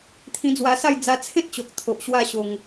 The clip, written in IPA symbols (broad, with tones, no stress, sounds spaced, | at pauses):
t̪ʰ ĩ˧ d͡z w a˧ s a˥˧ j d͡z a˧ t͡sʰ ẽ˦ t̚ t͡ɕ o˨ k̚ t̪ʰ o˨ ʔ ɕ w a˥˧ ɕ o˧ ŋ